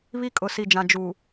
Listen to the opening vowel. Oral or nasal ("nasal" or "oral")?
oral